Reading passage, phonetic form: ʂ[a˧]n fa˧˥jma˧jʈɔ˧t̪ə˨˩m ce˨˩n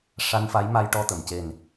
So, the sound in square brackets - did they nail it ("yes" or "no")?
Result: yes